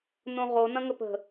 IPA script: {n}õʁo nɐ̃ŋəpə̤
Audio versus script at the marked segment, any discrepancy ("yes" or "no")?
no